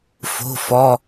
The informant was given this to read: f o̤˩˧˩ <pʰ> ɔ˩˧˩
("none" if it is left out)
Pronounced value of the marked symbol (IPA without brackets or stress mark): f